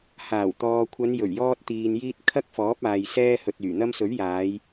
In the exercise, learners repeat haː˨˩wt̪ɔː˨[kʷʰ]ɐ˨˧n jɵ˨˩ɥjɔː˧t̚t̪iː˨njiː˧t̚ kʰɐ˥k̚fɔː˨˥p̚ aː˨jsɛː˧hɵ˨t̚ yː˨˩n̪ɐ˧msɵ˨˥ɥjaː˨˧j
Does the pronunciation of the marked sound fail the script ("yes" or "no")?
no